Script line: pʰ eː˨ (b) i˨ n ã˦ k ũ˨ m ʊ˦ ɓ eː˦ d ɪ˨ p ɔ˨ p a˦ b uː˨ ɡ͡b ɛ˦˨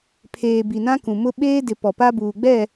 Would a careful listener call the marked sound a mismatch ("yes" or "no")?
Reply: no